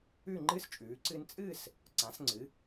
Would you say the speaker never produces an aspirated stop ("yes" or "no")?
yes